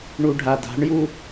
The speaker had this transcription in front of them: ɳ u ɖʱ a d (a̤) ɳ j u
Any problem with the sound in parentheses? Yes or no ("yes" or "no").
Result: no